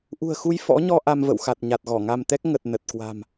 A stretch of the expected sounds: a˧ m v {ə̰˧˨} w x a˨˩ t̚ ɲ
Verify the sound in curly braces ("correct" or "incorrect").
correct